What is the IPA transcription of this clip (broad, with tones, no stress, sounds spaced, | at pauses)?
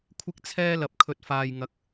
kʷʰ ɪ˥ k̚ t͡sʰ ɛː˥ l ɐ˧ p̚ kʰ ɵ˧ t̚ f aː˧ j ŋ ɐ˧ k̚